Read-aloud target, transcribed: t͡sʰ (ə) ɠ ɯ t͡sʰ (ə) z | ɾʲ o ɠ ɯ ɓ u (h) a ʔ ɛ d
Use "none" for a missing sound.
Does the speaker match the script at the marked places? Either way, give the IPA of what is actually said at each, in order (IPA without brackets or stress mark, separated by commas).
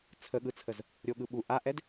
ə, ə, ʔ